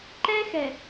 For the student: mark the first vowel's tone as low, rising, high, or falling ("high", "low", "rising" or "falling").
high